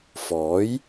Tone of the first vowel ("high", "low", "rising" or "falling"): rising